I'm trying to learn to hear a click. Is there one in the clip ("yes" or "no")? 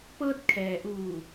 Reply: no